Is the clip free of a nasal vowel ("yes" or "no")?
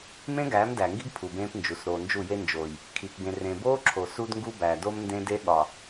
no